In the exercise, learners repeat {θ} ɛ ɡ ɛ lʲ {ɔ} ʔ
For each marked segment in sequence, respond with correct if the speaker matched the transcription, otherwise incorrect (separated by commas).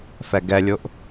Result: incorrect, incorrect